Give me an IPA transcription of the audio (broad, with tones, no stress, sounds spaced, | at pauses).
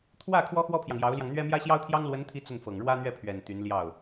t̪ʰ w ä˥˩ kʰ w ɔ˥ x w ɔ˥ pʰ j ɑ˨ ŋ j ɑ˧˥ ʊ̯ l j ɑ˧ ŋ n̪ ɥ ɛ˥ m j ä˥ ɕ j ɑ˥ ʊ̯ t̪ʰ j ɑ˥ ŋ l w ə˧˥ n t̪ʰ i˧˥ t͡s ə˥˩ n f ɤ˨˩ ŋ ɻ w ä˥ n̪ ɥ ɛ˥˩ pʰ ɥ ɛ˨˩ n t̪ y˧˥ n l j ɑ˥˩ ʊ̯